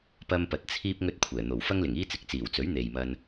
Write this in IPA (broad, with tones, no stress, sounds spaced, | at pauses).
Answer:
p ɐ˥ m p ɐ˧ t̚ t͡sʰ iː˥ p̚ ŋ ɵ˥ t̚ kʷʰ ɛː˨˩ n̪ o˨˩ w f ɐ˥ ŋ l ɪ˨˩ ŋ iː˥ t͡s ɪ˨ k̚ t͡s iː˨˩ w t͡s ɵ˨˥ ɥ n̪ e˨ j m ɐ˧ n